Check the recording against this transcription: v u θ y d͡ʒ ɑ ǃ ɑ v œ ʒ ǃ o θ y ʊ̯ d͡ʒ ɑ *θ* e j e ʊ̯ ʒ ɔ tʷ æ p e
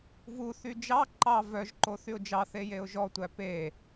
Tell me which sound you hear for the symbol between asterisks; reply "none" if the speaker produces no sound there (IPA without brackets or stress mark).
θ